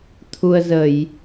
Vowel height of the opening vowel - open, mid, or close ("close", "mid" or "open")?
close